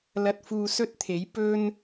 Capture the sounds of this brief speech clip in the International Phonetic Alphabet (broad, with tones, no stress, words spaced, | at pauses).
lɐ˧t̚fuː˧sɵ˥t̚t̪ʰe˨˥j pɵ˥n